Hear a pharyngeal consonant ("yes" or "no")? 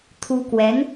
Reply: no